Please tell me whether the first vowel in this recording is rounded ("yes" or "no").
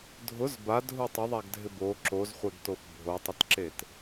yes